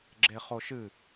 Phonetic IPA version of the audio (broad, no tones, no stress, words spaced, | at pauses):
ɡ͡ǁeχoʃɨ